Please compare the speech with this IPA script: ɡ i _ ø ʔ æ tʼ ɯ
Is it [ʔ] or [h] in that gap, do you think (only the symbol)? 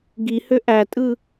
h